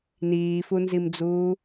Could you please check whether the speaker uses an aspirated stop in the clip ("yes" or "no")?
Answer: no